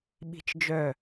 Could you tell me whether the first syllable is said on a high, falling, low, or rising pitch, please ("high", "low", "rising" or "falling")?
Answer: high